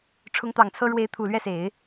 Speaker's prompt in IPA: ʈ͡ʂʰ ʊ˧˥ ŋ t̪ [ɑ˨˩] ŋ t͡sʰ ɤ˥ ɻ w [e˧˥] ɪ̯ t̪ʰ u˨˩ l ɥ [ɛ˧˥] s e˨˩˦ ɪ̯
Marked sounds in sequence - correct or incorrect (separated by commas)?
correct, correct, incorrect